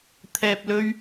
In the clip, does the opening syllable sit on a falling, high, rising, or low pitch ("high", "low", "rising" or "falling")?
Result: low